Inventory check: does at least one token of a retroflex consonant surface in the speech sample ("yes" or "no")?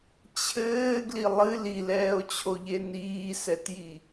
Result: no